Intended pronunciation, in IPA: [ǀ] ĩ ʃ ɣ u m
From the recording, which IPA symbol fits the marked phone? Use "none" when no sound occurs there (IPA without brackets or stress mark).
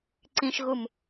ǀ